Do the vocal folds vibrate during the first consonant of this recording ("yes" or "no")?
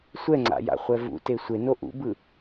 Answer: no